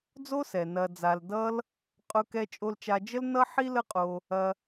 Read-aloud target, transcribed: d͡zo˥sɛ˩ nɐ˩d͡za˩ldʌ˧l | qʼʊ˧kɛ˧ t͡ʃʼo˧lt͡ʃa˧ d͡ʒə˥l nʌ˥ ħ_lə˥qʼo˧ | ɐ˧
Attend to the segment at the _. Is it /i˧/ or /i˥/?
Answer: i˥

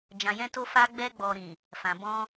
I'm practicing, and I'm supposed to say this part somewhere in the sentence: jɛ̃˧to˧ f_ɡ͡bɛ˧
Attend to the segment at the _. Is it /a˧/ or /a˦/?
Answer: a˧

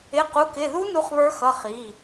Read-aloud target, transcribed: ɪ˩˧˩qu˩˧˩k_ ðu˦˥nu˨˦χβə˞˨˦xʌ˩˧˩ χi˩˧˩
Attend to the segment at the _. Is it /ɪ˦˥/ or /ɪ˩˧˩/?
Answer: ɪ˩˧˩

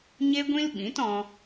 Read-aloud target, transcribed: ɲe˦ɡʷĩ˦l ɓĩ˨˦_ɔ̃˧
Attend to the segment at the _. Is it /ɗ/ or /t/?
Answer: t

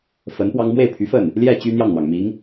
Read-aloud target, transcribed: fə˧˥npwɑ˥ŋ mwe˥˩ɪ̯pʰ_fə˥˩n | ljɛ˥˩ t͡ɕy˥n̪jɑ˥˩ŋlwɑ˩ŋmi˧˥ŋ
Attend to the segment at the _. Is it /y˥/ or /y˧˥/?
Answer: y˧˥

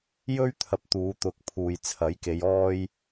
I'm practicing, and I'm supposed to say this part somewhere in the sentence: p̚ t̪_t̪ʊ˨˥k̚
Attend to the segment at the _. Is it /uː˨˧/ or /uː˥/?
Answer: uː˨˧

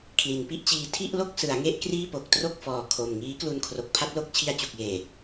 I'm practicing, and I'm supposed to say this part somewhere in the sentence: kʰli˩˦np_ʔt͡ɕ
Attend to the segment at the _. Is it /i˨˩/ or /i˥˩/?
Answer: i˥˩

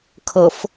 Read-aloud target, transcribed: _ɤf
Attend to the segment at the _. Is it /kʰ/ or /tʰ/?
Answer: kʰ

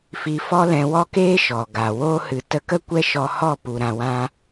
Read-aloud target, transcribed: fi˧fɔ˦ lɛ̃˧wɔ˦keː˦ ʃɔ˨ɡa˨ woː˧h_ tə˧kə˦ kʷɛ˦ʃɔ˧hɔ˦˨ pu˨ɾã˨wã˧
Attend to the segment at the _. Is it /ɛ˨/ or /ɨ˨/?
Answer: ɨ˨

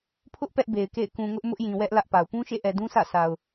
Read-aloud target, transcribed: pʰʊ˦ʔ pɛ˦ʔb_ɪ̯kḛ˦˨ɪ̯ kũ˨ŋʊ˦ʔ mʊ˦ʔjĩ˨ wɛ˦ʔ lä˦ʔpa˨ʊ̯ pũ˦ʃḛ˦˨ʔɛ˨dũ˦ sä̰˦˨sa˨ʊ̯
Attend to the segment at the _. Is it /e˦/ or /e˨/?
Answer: e˨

